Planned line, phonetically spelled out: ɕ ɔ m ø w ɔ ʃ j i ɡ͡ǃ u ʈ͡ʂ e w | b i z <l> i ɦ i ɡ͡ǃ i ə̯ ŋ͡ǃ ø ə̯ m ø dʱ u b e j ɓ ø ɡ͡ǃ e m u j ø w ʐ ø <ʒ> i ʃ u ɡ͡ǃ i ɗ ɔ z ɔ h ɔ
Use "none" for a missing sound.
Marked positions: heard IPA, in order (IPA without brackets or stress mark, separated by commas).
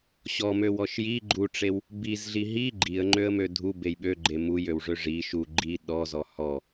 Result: ɮ, ʐ